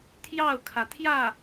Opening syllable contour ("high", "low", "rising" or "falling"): falling